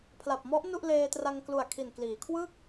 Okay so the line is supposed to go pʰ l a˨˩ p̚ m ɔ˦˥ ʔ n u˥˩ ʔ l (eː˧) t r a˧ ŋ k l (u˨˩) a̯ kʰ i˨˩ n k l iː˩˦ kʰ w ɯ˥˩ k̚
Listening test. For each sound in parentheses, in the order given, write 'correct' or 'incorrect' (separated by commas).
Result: correct, correct